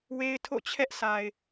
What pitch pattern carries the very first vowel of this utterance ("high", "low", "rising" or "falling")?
high